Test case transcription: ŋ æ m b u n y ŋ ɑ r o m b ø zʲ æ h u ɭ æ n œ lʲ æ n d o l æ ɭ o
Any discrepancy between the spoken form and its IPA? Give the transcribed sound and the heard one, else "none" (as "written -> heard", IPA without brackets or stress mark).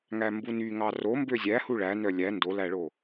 none